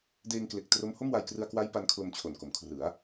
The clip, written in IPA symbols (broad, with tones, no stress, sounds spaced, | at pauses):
d eː˧ ŋ k l e˨˩ k̚ t r o˦˥ m h o˥˩ m w a˧ j k r ɯ˧ a̯ k w a˦˥ j p a˦˥ n kʰ l o˧ m t͡ɕʰ o˨˩ n k o˩˦ m kʰ r ɯ˩˦ a̯